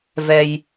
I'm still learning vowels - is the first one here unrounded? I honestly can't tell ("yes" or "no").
yes